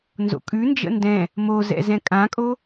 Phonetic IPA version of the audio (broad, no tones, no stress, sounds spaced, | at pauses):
n z o̰ kʼ ʉ n d͡ʒ ə̰ n d ɛ̃ | m o z ɛ̰ z ɛ̃ kʼ ã kʼ o